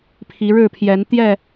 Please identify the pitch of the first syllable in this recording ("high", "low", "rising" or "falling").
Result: rising